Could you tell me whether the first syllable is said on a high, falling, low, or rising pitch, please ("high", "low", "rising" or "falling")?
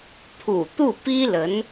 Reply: low